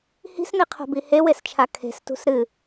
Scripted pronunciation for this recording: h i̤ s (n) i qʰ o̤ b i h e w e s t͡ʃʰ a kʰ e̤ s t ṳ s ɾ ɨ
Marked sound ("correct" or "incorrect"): correct